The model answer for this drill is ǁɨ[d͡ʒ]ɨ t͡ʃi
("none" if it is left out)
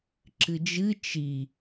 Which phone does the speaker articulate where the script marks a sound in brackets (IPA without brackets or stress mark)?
d͡ʒ